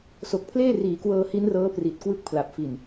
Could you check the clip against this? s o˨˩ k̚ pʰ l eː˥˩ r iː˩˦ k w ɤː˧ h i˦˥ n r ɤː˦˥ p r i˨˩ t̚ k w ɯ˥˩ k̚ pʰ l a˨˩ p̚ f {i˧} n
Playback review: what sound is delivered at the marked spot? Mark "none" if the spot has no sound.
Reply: i˨˩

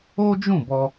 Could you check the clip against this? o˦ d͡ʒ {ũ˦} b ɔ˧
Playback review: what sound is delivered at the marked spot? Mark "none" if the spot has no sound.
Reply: ũ˦˨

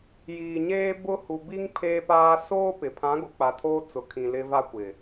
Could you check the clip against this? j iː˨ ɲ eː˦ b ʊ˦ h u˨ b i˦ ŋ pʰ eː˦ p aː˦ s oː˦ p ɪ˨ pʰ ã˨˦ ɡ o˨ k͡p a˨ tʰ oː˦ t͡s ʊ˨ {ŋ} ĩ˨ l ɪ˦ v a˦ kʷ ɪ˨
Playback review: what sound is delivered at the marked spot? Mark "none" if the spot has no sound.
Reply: kʰ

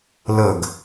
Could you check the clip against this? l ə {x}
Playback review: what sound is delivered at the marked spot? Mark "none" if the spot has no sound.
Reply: ɡ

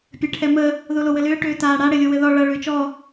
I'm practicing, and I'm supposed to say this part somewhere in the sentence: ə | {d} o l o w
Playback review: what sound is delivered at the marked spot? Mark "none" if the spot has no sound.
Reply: ð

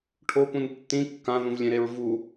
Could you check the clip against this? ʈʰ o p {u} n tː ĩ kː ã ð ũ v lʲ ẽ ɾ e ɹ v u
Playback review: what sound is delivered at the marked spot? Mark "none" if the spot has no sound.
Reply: ũ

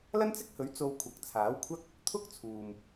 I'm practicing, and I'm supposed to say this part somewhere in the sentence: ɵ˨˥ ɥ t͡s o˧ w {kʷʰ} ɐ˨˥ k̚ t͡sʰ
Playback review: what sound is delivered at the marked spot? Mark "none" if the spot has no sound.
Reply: kʷʰ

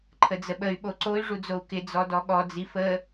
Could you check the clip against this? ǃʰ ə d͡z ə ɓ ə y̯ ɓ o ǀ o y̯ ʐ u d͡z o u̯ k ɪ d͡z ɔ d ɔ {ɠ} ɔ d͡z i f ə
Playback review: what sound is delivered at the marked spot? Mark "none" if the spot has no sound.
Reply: ɠ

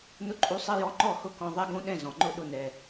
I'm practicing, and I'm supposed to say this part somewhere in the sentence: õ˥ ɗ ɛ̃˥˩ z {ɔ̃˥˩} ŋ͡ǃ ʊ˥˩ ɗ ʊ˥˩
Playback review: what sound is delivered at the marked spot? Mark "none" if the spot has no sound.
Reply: ɔ̃˩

